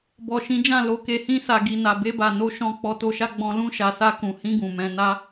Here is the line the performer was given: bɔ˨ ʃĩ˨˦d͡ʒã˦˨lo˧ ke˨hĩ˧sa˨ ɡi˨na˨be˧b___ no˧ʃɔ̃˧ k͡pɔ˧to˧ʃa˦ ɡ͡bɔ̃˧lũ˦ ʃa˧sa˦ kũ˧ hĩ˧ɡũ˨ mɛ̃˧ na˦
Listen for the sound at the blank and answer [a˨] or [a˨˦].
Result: a˨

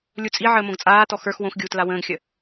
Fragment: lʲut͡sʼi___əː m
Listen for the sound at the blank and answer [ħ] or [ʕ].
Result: ʕ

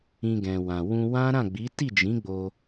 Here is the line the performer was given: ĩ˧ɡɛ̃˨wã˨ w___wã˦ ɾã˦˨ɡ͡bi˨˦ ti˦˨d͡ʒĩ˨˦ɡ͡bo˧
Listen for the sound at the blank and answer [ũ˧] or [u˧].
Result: ũ˧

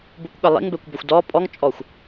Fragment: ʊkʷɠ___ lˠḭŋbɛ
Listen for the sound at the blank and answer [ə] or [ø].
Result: ə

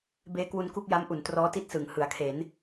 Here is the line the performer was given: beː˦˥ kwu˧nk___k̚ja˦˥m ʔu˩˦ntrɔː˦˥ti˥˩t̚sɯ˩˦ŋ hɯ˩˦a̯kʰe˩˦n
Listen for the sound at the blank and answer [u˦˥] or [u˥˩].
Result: u˥˩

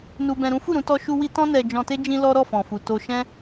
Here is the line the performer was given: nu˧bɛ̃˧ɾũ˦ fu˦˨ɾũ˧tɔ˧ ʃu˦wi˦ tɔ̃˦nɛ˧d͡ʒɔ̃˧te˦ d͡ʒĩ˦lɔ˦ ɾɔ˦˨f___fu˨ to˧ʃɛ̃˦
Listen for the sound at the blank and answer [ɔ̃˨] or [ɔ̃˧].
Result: ɔ̃˨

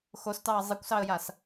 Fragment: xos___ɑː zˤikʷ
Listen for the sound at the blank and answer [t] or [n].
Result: t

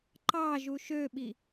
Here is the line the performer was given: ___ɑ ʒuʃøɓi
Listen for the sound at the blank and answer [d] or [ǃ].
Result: ǃ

